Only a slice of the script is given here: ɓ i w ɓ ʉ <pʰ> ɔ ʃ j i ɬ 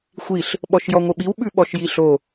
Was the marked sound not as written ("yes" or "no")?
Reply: yes